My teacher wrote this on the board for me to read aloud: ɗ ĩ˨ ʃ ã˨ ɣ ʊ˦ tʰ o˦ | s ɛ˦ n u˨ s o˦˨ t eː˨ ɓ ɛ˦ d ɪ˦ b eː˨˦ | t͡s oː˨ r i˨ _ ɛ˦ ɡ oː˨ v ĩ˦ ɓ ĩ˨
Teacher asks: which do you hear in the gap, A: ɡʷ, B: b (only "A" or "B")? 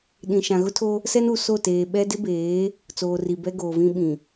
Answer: B